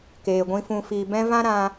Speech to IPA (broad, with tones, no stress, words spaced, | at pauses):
keː˨ɡʷĩ˧ fũ˨fiː˨bɛ̃˧ vã˦ɾã˧